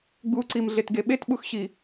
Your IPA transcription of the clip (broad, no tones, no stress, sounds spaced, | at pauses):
ɡ͡b u ǀ i m ɮ e t ɡ e ɓ e t ɓ u x ɕ i